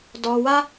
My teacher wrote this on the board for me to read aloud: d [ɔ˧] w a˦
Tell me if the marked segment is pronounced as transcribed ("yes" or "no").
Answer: yes